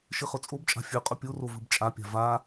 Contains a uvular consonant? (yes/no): yes